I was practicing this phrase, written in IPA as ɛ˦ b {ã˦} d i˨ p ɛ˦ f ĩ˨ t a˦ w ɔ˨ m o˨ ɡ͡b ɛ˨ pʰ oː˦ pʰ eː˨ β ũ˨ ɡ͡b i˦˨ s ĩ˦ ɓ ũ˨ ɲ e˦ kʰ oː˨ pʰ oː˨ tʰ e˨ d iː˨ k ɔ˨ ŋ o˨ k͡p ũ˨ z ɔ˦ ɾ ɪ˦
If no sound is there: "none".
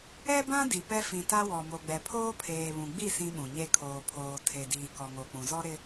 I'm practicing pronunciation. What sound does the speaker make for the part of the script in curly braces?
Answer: ã˦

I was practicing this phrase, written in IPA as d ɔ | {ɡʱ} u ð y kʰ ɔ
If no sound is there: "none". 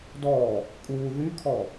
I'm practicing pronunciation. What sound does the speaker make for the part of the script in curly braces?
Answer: kʼ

